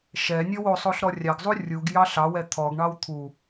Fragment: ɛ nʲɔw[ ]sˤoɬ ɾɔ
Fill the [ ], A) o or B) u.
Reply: A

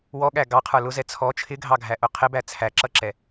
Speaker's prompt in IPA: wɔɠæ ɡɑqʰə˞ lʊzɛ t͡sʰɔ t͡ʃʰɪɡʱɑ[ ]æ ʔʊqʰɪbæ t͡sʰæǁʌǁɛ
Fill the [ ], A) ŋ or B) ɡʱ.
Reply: B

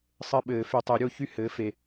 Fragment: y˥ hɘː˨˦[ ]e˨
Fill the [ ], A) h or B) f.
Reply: B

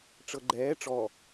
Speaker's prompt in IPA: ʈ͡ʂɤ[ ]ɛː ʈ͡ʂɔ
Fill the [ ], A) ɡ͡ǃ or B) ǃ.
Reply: A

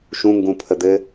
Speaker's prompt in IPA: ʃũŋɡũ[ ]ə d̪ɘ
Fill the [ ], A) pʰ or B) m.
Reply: A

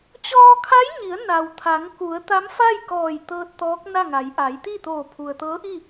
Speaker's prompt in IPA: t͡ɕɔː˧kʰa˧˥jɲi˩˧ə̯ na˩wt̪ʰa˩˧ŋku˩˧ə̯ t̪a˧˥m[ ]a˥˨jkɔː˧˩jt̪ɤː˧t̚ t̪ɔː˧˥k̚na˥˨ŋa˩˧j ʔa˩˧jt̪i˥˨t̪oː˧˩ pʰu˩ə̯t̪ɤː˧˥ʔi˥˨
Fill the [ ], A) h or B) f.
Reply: B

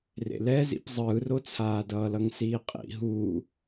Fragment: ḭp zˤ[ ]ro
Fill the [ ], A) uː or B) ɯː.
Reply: B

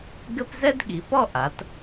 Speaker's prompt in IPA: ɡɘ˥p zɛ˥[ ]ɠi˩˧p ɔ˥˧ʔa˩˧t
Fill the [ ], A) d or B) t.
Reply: A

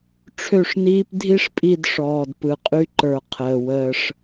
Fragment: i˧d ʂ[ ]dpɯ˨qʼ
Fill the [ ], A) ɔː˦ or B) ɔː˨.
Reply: B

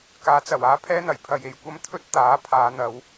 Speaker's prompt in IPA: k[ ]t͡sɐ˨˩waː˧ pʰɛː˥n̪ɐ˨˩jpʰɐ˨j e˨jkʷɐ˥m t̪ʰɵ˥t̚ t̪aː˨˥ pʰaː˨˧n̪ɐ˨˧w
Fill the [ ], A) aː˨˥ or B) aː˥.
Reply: A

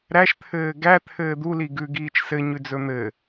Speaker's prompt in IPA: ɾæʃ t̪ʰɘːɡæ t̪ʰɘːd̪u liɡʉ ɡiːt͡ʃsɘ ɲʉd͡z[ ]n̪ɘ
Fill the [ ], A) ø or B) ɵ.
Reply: B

